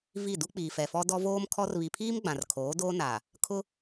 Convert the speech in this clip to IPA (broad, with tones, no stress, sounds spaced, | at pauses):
v i˦˨ d u˦ k͡p iː˨ f ɛ˨ f ɔ˦ d ɔ˦ v oː˦ m kʰ ɔ˦ r β i˨ pʰ iː˦ m ɡ͡b ã˨ r kʰ oː˨˦ d oː˦ n aː˨ | kʰ ʊ˦